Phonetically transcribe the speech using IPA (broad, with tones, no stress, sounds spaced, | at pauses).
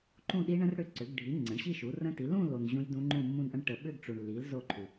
ǃ ũ˥˧ ɗ i˦˥ ɳ ə̃˦˥ r ɽ ʏ˦˥ ǀ ʏ˩˥ ɡ ɖʱ i˩˥ ŋ͡ǀ ə̃˩˥ ɳ ɕ i˥˧ ʃ u˩˥ r ə̃˦˥ t i˩˥ l ũ˥˧ l o˨ n ʑ ũ˦˥ j d ũ˦˥ ŋ͡ǃ ũ˥˧ mː ũ˥˧ n ʔ ə̃˦˥ ɳ ʈ ə˨ ɓ ʏ˥˧ ɡ ʈ͡ʂ u˨ ɳ lː i˩˥ l z o˥˧ ǃʰ u˨